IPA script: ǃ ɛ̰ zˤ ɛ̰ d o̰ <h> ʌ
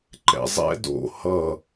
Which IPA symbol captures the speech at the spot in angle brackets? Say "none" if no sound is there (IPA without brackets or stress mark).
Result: h